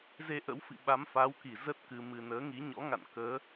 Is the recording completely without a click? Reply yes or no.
yes